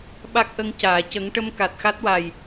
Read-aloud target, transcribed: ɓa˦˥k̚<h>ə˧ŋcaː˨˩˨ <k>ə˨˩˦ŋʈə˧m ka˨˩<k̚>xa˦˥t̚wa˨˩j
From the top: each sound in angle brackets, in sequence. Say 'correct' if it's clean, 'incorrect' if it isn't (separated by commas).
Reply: incorrect, incorrect, incorrect